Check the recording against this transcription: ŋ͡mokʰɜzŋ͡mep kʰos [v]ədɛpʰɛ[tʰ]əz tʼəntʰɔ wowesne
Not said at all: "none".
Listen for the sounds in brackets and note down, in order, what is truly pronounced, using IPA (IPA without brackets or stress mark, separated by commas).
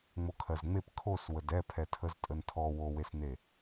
w, tʰ